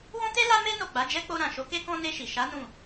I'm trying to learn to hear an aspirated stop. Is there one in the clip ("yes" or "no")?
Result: no